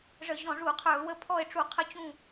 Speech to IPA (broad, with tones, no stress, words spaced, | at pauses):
ʐə˧˩˧ ʑɔ̃˧˩˧ʐu˧˩˧ qʰə˞˧˩˧ʊ̯wə˦˨ pʰɔ˦˨ɪ̯ʈ͡ʂu˧˩˧qʰə˦˨t͡ɕũ˦˨